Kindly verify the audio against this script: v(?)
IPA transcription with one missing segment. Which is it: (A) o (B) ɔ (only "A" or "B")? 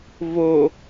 A